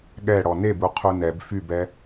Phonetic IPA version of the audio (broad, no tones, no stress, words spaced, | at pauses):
ɠɛɽɔ nebuqʰu nɛb fybɛ